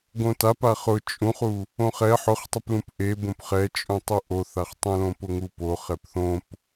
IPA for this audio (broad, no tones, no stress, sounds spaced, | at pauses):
ɡ õ t a p a χ ʊ t͡ʃʼ ũ χ u | õ χ ɛ ħ ʊ χ tˤ ʊ p l ũ p ʔ e b õ p χ ɛ t͡ʃʼ ũ tˤ u ʔ o θ a χ tˤ ũ l õ p ʊ ŋ u p o χ ɛ p θ õ p